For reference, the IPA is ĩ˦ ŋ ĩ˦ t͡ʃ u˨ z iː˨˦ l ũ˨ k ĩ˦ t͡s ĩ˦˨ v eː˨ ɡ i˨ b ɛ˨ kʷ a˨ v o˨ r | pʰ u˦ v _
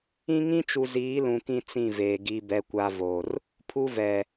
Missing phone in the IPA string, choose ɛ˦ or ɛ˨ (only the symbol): ɛ˨